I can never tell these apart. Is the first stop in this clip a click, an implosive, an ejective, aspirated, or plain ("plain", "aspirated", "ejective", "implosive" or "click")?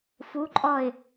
click